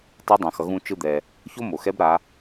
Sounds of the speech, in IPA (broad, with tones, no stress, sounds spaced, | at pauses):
tˤ ɛ˧˥ dˤ ã˩˧ x ʌ˩˧ ɣ ũ˧ t͡ʃ ɯ˧ d̪ ɛ˩ | ç o˥ m o˩ x ɛ˧˥ b ɾ a˩˧